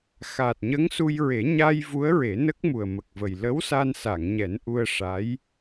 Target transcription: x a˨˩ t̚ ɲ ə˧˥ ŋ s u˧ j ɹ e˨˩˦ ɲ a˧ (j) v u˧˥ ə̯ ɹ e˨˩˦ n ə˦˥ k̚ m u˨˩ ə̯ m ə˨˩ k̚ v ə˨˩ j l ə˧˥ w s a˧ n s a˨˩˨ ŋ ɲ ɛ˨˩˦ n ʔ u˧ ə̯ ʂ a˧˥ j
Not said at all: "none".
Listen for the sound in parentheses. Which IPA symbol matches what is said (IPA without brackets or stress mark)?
j